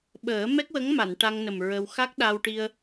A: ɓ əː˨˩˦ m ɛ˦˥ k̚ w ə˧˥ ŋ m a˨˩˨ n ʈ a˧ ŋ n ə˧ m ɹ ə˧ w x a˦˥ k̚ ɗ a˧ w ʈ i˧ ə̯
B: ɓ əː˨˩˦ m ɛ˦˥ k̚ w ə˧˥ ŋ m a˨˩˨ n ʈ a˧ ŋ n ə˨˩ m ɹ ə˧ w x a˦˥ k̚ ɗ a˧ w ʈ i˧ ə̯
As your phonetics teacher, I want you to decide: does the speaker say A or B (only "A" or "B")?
B